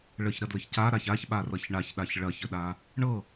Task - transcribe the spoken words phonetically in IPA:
ɭəçɾɐdləç caɾaç açɓarʌç ɳaçɗaç ɭɐçəɗa | ɳɤ

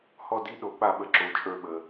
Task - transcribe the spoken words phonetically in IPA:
hɔ˦˨di˧˥˧ ɗo˨˦k͡pa˦˨ɓə˨˦ǁo˨˩ t͡ʃʼə˞˦˨ɓə˨˩

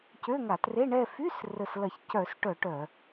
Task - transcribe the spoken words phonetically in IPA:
cø˧˥˧ŋa˧˩˧tre˧˥˧ ɳɛ˦˨fy˧˥˧s rə˦˨s lɐ˧˩˧çcœ˧˩˧sʈœ˧˩˧ ʈœ˧˩˧

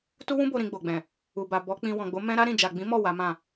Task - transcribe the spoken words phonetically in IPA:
tu˦wũ˦bo˧ ɾĩ˧ɡ͡bo˨ɡ͡bɛ̃˨ | u˨ba˨ bɔ˨˦ k͡pĩ˧ wɔ̃˨ɡ͡bo˨˦ mɛ̃˦ ɾa˦ɾĩ˦˨ d͡ʒa˨ɡ͡bĩ˨˦ mɔ˦˨ wa˨˦mã˦˨

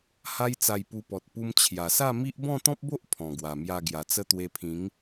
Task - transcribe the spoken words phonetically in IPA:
ha˦jt͡sa˧jpu˧pɔ˨t̚ pu˧m t͡ɕʰja˨˩sa˥˧ mi˦ʔ bɔ̃˥˧t̪ɔ̃˦p̚bo˦ʔ pʰɔ̃˨˩ɡwa˨˩mja˧ ɡja˨˩t͡sə˦ t̪we˧pʰĩ˨˦ŋ

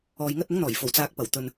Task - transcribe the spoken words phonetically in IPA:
ɔː˨jŋɐ˧t̚ ʊ˨˥ŋn̪ɔː˨˩jfo˨˩w t͡saː˨k̚pɐ˨˩w t̪ɵ˧n

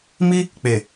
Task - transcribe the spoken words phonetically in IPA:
mi˦ | k͡pe˨

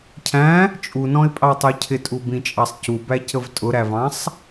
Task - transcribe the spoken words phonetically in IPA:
cʰæ̃ | t͡ʃʼunɔ̃ɪ̯pʼɑtˤə˞ cʰɪtʼubĩt͡ʃʼɑsˤ cubæcəv tʼʊɾævɑ̃sˤ

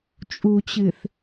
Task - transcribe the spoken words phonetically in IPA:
t͡ʃʼut͡ɕɨθ

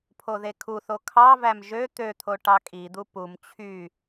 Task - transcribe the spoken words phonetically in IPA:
pʰoðekʰuθo kʰɑvæm ʒø t̪øt̪ʰo ʈɑkʼid̪u pum t͡ɕʰy

